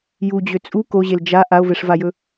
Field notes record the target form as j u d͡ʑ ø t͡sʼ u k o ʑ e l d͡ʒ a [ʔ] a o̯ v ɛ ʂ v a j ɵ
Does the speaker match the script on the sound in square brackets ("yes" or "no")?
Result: yes